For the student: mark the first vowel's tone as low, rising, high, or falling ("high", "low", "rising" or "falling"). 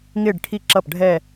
falling